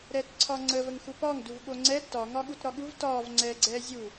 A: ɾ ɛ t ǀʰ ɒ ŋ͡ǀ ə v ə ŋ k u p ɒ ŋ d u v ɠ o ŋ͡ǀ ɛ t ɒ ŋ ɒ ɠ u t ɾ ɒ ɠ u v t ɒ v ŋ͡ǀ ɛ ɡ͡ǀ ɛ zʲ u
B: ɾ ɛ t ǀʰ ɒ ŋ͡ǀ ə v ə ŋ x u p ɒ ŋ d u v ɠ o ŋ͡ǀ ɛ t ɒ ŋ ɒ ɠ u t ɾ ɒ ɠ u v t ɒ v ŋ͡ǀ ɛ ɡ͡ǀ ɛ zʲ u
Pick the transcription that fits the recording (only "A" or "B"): B